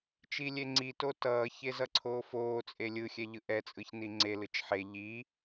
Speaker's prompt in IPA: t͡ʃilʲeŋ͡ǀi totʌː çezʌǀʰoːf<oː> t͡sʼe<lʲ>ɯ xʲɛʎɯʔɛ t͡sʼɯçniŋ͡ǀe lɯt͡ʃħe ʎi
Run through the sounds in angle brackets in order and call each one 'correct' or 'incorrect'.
correct, correct

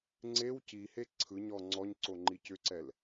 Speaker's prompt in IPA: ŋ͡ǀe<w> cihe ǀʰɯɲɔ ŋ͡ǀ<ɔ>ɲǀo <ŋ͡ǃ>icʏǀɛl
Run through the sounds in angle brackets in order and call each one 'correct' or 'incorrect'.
correct, correct, correct

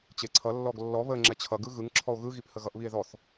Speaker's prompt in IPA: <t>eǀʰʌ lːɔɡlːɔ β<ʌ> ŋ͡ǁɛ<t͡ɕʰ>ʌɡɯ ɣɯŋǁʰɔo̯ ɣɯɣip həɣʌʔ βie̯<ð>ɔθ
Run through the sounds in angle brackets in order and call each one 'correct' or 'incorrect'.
incorrect, incorrect, correct, correct

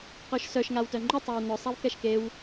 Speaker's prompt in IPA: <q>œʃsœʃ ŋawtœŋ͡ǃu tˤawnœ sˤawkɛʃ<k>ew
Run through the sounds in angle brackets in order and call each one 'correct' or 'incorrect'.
correct, correct

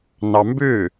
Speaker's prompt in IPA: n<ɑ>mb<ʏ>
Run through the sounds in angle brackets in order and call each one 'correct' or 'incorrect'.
correct, correct

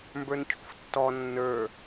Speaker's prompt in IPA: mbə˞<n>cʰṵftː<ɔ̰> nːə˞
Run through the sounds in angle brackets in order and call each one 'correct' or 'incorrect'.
correct, incorrect

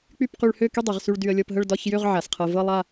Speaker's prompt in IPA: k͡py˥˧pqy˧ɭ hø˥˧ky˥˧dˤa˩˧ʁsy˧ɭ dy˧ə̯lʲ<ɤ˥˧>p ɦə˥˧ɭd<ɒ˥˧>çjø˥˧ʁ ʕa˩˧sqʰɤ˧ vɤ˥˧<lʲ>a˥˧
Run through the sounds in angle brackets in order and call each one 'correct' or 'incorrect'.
correct, correct, incorrect

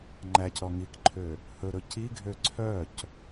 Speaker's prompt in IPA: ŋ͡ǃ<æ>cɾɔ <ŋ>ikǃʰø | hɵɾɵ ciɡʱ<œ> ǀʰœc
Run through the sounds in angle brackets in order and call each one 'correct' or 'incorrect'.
correct, correct, incorrect

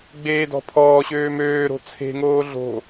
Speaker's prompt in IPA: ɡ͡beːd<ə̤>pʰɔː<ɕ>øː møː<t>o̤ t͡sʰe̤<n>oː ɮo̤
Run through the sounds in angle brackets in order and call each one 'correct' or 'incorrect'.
incorrect, correct, incorrect, incorrect

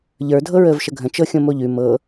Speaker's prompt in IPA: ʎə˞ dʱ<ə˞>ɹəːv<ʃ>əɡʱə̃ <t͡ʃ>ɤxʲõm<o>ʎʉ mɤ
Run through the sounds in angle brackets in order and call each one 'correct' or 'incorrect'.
incorrect, correct, correct, correct

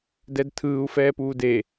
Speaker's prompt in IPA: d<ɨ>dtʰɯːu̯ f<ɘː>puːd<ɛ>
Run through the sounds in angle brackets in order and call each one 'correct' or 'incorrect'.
incorrect, incorrect, incorrect

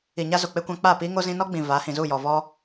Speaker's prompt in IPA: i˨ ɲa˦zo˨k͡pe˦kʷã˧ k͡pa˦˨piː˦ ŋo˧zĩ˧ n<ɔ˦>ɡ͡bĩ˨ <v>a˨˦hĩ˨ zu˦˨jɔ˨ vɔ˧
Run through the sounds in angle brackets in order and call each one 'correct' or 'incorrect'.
correct, correct

